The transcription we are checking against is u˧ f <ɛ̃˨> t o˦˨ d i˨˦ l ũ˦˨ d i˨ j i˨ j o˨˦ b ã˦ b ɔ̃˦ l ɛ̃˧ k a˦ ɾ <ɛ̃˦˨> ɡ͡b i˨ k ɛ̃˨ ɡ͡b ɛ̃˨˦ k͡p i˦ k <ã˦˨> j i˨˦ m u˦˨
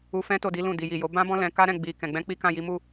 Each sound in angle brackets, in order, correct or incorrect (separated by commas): incorrect, correct, correct